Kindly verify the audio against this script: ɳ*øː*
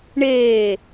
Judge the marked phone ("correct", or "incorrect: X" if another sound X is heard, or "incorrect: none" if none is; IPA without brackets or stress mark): incorrect: eː